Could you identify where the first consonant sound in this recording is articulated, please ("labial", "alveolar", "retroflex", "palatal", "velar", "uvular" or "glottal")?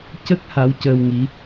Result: palatal